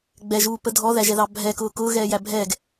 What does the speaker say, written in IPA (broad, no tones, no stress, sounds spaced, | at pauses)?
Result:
ɡ͡b ɛ ʒ uː p ə dʱ ɔ ð æ ʒ ɛ ð ɑ bʱ ɛ k ʊː k ʊː ɣ ɛː j æ bʱ ɛ ɡ